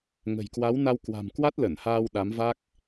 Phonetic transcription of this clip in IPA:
ŋə̤˨˩jkwa˨˦wna˧w kwa̤˨˩m kwa˦˥t̚lə˧˩nhaː˧w ɗa˨˦mva˦˥k̚

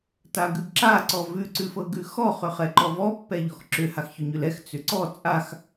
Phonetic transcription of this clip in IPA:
taɡʉɡǁa ǀɔvʉ ǀʉfɤɡʉxɔ χʏχɛǃɔvɔ pːɛʎɔxǁʏ haxçʏɲʏlɛx t͡sʏǀɔ t͡sʼax

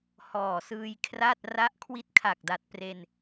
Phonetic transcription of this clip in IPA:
hɔː˨˩ sɯː˧jkʰra˥˩t̚ ra˦˥ʔkʰwi˦˥t̚kʰa˨˩k̚da˨˩t̚ pre˧n

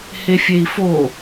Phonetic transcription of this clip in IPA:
hefʲei̯fo

